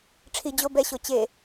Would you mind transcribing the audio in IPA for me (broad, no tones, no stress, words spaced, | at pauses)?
ʈ͡ʂʰi d͡ʑo bɛɕo t͡ɕe